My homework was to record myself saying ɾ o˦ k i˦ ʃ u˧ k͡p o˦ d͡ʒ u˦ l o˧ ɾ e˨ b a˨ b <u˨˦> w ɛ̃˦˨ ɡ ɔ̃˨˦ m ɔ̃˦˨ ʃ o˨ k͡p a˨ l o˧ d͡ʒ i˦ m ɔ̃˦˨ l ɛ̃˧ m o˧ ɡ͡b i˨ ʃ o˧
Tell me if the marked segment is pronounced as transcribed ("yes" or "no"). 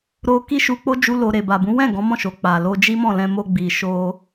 no